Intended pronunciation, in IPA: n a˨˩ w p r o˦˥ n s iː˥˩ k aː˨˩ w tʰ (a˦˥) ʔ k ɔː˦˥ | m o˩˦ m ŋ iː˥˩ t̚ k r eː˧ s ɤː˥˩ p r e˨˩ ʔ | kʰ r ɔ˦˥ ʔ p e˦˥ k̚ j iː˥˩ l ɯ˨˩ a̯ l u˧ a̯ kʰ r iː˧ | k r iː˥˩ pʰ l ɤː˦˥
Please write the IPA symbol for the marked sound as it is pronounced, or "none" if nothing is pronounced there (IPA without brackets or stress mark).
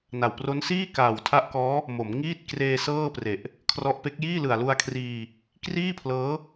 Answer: a˦˥